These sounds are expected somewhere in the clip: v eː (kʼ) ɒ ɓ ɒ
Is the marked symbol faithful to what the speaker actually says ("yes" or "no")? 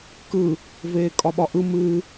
yes